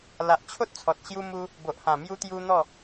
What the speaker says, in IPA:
l a˨ ʔ t͡ɕʰ o˦ t̚ t͡sʰ ɔ˨ t̚ ɕ j u˦ m u˦ | b o˨ ʔ h ã˨˩ m j u˧ t̪ j u˧ n̪ ɔ˥˧

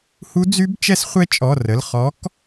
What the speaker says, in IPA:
h u˦˥ d͡z y˦˥ b t͡ʃ ɛ˦˥ s χʷ ɛ˦˥ t͡ʃʼ ɔ˩˧˩ r ə˩˧˩ l χ ɔ˨˥ k

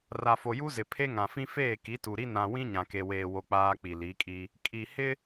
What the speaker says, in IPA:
r a˨ f o˨ j u˦ z ɪ˨ pʰ e˦ ŋ ã˨ f ĩ˦ f eː˦˨ k i˨˦ t u˨ ɾ i˦ n ã˨ w ĩ˦ ɲ ã˨ k e˨ w eː˨ w o˨ k͡p aː˦ k͡p i˨ l i˨˦ kʼ i˦ | kʼ i˨ h ɪ˦

